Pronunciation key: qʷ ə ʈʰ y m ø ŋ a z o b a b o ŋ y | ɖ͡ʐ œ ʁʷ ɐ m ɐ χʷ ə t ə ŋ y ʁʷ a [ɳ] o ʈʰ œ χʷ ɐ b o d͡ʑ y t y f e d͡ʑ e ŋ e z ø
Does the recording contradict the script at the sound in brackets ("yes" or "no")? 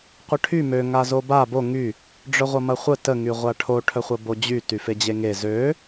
yes